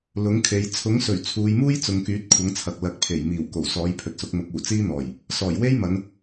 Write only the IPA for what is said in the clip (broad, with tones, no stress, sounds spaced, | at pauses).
l ʊ˨˥ ŋ kʰ e˨˧ j t͡sʰ ʊ˨˥ ŋ s ɵ˨˩ ɥ t͡sʰ uː˨˧ j m uː˥ j t͡s ʊ˨˧ ŋ k yː˨˥ t̚ kʷʰ ɐ˨˥ ŋ t͡sʰ ɐ˨ k̚ l ɐ˨˥ k̚ pʰ e˨˩ j m iː˨˩ w k o˨˩ w s ɔː˨˥ j pʰ ɵ˨ t̚ s ʊ˨˥ k̚ m ʊ˨˥ k̚ uː˨˩ t͡s iː˥ n̪ ɔː˨˩ j | s ɔː˨˩ j w e˥ j m ɐ˨˧ n